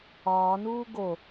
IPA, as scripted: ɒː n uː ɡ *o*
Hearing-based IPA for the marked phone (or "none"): o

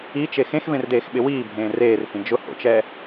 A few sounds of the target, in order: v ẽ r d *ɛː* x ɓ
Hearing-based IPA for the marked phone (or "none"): eː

